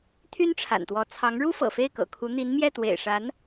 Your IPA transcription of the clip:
t̪ʰy˥nʈ͡ʂʰa̰˨˩nt̪wɔ˧˥ t͡sʰɑ˧˥ŋɻu˥ fɤ̰˨˩fe˥˩ɪ̯kɤ̰˨˩kʰu˧˥ n̪i˧˥nmjɛ˥˩ t̪wḛ˨˩ɪ̯ʂa˧˥n

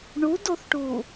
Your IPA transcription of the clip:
ɳudoθʈu

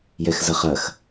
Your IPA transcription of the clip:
jɛxzɐχɐx

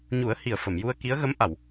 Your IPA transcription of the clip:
ɲu˨˩˦ə̯ hi˨˩ə̯fə˨˩˨m ju˧ə̯ ki˧˥ə̯ɣə˧˥mʔa˨˩˨w

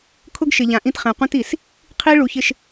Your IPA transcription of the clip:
kʰʊ˦ɡʃɪ˨ʎã˨ ʔĩ˦tχɛ̃˨ qʷĩ˦ti˨s | qʰi˦ɭu˨çɪ˨ʃ

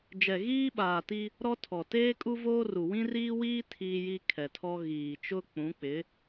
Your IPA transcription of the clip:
d͡ʒɛ˨ɣiː˦ɓaː˨ti˦ | ɾɔ˦tʰɔ˨ teː˦kʼu˦voː˦ru˨ wĩ˦riː˦wiː˦ tʰiː˦ji˦ kʰɛ˨tʰɔ˦ ɣiː˨t͡ʃʊ˦ k͡pũ˨˦k͡pɪ˨˦

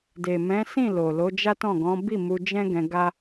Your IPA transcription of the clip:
de˨ mɛ̃˨˦sĩ˦˨ lo˨lo˨˦ d͡ʒa˦tɔ̃˦˨ɡɔ̃˨˦ bi˦˨ mu˧d͡ʒɛ̃˦ɡɛ̃˧ ɡa˦

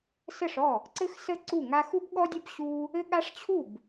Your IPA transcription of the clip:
sə˥˩ʂɔ˥˩ | ǀɘ˥xsə˥ ǀu˥˩ŋa˥ xu˥bɠɔ˥dʲɐ˥b ɕu˥ | ɘ˥ɠa˥ʂ t͡ɕʰu˥˩b

